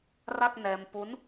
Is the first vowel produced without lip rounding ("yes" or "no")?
yes